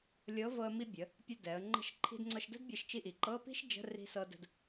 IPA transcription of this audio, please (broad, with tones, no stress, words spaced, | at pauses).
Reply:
lʲɤ˨˥vɤ˧ə̯ mi˧bʲə˩˧ | pʲə˧dɛ˩˧ə̯ ŋ͡ǃə̤˧ʃ ǃʰi̤˧dŋ͡ǀɤ˧ʃdə̤˥dbʲɤ˧ʃ t͡ʃi˧ʔi˩˧ǃɤ˧˥˧ pi̤˥ʃd͡ʒə̤˧˥˧ri̤˧sɤ˧ də̤˧d